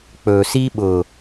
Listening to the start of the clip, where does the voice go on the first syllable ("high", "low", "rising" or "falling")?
low